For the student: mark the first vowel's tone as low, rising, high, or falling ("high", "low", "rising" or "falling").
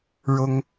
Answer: high